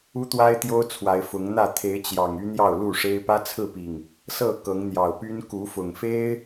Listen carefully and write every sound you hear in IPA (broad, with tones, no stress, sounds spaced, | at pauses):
u˦ t̪ w a˦ ɪ̯ t̪ j o˦ ʊ̯ t͡sʰ w a˨˦ ɪ̯ f ʊ˨˦ ŋ n̪ ä˥˨ t̪ʰ e˨˦ ɪ̯ t͡ɕ j ɑ˨˩ ŋ y˦ n̪ j ɑ˥˨ ʊ̯ l u˥˨ ʂ e˦ ɪ̯ p ä˦ t͡sʰ ɹ̩˥˨ p i˨˩ ŋ | s ɤ˥˨ k ɤ˨˦ ŋ n̪ j ɑ˨˩ ʊ̯ p y˦ n k u˨˦ f ʊ˨˩ ŋ f e˦ ɪ̯